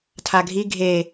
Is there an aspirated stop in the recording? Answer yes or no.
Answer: yes